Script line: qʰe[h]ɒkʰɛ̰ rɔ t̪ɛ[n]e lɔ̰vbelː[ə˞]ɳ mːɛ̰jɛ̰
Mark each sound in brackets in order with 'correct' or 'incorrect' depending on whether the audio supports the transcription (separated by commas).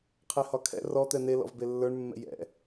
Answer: correct, correct, correct